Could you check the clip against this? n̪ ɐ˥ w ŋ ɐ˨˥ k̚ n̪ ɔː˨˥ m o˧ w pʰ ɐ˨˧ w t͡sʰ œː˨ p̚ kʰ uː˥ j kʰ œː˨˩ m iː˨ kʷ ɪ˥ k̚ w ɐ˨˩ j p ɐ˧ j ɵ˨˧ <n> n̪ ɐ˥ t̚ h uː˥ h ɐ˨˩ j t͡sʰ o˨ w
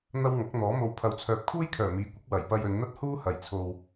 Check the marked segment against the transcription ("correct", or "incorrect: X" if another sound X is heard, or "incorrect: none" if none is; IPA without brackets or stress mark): correct